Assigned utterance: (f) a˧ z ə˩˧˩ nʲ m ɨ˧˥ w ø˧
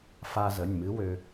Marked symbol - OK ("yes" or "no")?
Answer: yes